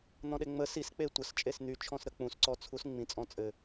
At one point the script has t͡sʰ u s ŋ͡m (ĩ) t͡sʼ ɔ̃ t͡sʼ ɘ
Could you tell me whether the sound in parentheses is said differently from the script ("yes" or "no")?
no